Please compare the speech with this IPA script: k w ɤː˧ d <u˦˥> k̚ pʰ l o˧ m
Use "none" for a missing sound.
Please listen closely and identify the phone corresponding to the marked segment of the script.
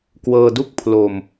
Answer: u˥˩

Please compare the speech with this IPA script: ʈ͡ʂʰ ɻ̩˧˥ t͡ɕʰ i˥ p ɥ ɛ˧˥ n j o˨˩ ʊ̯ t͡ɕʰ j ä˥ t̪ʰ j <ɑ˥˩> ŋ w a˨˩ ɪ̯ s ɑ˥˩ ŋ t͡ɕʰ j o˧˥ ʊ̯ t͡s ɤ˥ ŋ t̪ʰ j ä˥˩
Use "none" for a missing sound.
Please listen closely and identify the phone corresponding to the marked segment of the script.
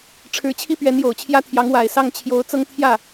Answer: ɑ˧˥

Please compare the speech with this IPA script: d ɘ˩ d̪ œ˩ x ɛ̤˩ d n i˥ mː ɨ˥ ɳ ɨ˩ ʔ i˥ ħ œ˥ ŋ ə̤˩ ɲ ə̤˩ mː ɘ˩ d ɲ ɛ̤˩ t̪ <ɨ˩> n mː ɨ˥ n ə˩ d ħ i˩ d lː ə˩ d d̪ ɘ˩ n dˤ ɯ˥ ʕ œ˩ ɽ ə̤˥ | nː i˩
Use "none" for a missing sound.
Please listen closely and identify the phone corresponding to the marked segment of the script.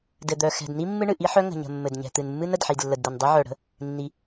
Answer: ɨ˩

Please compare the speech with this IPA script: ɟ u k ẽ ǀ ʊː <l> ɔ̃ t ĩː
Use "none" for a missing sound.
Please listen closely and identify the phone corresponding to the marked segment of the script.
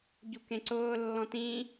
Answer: lː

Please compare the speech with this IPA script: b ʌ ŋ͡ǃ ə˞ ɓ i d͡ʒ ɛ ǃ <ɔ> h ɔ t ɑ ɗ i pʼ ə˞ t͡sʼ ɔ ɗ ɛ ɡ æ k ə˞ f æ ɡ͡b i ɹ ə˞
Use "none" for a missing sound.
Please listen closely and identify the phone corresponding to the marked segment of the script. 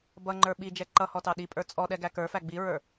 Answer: ʌ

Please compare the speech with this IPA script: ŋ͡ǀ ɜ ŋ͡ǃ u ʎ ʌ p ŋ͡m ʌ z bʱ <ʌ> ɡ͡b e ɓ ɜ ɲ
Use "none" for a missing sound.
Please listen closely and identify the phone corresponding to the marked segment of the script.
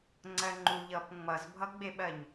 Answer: ʌ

